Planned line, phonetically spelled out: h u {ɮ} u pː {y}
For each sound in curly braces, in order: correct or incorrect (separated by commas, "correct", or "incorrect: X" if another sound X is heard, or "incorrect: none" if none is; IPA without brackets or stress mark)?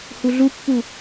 correct, incorrect: u